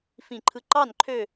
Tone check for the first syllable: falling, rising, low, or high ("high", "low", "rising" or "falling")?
falling